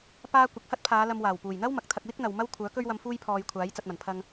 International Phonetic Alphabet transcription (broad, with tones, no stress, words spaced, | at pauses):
paː˧ kʷɪ˨k̚hɐ˥t̚pʰaː˨˧ lɐ˧mwaː˨˩w puː˨˩jn̪ɐ˥w mɐ˨˥k̚t̪ʰɐ˧k̚ wɪ˥k̚n̪ɐ˨w mɐ˥wkʷʰœː˨˥kɵ˥ɥwɐ˧m fuː˥jpʰɔː˧jkʷʰaː˨˥j t͡sɐ˨t̚mɐ˨˩n pʰɐ˧ŋ